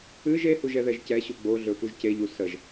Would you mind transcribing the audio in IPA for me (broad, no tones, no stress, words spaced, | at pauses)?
ɨʒ ehuʒ ɛðɛʒcɛɕu ɡ͡bo ɮɵfuʒceʎu səʒ